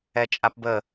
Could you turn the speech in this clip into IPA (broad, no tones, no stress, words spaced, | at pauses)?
ɛt͡ʃʼapbə